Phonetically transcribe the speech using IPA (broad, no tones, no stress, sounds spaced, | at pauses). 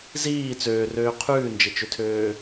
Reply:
z iː t͡s øː r øː qʰ ʉː n d͡ʒ e t͡ʃ ø tʰ øː